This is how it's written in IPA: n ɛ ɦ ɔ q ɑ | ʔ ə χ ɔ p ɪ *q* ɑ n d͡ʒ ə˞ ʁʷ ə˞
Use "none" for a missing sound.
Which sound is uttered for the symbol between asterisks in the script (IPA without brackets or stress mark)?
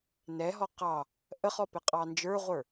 qʼ